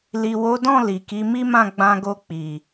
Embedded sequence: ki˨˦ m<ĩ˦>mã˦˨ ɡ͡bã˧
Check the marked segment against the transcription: incorrect: i˦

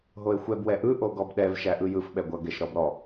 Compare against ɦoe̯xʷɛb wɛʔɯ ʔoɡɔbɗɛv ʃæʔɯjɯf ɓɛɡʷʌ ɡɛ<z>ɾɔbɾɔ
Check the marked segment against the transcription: incorrect: ʃ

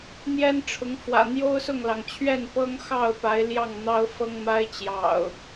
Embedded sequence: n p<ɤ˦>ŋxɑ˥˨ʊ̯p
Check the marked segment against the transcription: correct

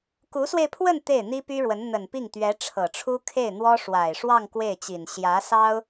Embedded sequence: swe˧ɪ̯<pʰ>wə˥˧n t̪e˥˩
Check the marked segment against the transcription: correct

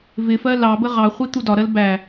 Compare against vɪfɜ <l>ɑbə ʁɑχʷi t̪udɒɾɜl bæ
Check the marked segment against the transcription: correct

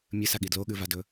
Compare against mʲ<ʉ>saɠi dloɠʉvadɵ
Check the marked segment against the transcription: incorrect: ɨ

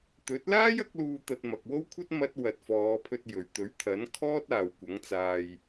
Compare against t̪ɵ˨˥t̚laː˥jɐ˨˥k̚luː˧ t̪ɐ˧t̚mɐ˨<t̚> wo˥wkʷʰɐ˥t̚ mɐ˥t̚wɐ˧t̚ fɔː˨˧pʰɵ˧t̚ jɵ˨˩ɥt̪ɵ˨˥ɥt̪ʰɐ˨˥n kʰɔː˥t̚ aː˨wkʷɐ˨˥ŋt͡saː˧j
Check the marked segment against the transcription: incorrect: k̚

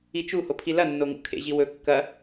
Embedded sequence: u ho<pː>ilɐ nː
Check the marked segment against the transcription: incorrect: pʰ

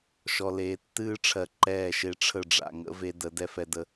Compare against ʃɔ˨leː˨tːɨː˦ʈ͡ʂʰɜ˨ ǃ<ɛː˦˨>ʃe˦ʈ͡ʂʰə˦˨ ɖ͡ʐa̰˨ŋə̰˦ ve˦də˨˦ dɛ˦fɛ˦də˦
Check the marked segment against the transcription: correct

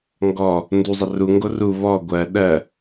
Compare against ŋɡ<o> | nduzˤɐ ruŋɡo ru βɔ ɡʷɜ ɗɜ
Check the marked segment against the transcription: incorrect: ɔ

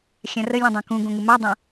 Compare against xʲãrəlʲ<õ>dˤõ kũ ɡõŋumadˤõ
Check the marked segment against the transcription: incorrect: ũ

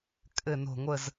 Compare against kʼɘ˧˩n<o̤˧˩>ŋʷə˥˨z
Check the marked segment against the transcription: correct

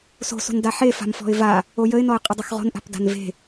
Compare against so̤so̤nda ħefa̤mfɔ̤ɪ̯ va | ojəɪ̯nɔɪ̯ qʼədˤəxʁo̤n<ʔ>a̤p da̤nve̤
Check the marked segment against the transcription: correct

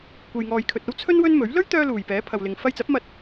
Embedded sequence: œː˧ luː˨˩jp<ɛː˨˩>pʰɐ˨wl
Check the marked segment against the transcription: incorrect: ɛː˨˥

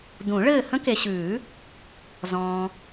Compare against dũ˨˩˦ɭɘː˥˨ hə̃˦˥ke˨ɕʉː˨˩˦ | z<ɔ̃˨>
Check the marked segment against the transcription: incorrect: ɔ̃ː˨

